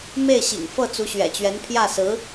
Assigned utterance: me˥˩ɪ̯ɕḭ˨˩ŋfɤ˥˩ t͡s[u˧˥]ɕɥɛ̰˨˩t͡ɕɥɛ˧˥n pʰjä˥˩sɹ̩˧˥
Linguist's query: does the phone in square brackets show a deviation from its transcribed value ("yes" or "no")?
no